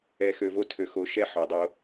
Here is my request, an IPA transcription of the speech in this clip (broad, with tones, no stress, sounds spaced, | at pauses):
ɛ˨ x ø˨ v o˦ tʰ ø˨ x o˨˦ ʃ ɛ˦ ħ o˨ dˤ o˦